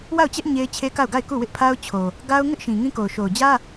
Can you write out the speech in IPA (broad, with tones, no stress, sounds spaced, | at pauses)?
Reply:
w a˦˨ ʊ̯ t͡ɕ ɛ˦ ʔ ɲ e˦ ɪ̯ t͡ɕʰ e˦ k a˦˨ ʊ̯ ɡ a˦˨ ɪ̯ k u˦˨ w ɪ˦ ʔ pʰ a˦ ʊ̯ t͡ɕʰ o˨ | ɡ a˦ ʊ̯ ŋ ɪ˦ ʔ ʃ ĩ˨ ŋ ĩ˦ k o˨ ʊ̯ ʃ o˨ ʊ̯ d͡ʑ ä˦